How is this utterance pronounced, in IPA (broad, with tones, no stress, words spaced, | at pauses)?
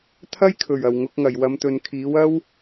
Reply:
t̪ʰɐ˥jkʰɵ˨˩ɥ ɐ˨˩wŋʊ˨˥k̚ŋɐ˨˩j wɐ˨˧mt̪ɵ˨nkʰiː˨˥w ɐ˥w